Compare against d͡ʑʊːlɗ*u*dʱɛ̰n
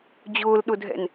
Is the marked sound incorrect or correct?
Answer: incorrect